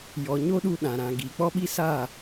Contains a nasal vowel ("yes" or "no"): yes